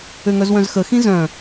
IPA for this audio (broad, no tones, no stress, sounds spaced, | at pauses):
ø ŋ œ z w œ̃ z x ə x ĩ z œ̃